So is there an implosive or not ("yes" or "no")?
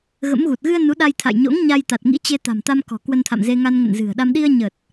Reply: yes